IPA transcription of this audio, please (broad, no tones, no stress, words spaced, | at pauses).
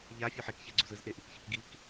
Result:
ʎa fʲuħekçɛɡ͡ǀuz ɯzʔe ʔikçɯkɡik